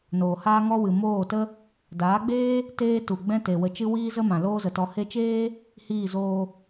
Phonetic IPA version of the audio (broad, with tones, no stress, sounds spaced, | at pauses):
n oː˨ h aː˦ ŋ ɔ˦ w ɨ˨ m oː˦˨ t ə˦ | d aː˨˦ ɡ͡b eː˦ | t eː˦ t u˨ ɡ͡b ɛ̃˦ t e˨ w ə˨ t͡ʃ ɨ˧ w iː˦ z ə˦ m ã˨ l oː˦ z ə˨ t ɔ˧ h e˧ t͡ʃ eː˦ | h iː˦˨ z oː˧